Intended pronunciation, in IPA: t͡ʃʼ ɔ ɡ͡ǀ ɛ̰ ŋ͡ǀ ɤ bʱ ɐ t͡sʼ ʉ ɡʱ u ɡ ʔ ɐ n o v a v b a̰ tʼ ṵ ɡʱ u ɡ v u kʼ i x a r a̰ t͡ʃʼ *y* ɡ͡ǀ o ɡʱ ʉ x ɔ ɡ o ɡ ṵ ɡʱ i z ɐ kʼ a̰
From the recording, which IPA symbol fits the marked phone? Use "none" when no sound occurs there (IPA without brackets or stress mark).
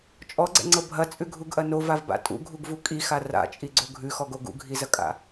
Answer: i